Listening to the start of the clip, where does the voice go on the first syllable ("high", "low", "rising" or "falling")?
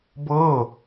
falling